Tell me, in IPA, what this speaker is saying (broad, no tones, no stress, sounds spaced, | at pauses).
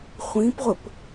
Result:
χʷ ĩ p ʁʷ ə p